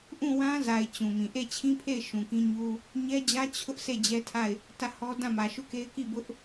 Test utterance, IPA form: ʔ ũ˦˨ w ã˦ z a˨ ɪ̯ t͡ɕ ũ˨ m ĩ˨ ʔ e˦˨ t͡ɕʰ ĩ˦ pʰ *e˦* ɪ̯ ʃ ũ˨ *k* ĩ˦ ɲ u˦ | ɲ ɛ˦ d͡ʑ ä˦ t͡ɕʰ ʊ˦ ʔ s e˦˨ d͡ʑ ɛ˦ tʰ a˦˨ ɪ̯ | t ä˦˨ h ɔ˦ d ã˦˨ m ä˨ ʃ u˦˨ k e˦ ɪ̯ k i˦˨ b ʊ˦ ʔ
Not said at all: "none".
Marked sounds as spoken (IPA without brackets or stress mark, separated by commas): e˦˨, k